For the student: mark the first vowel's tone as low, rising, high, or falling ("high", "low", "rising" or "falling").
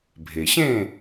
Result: low